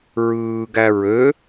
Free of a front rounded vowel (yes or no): no